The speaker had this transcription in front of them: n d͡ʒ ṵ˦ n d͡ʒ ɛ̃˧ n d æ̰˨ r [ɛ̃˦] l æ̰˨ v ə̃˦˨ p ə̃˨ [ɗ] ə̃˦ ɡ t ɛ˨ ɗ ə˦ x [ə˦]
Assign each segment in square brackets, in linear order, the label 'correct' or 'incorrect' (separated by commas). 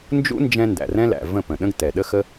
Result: correct, correct, correct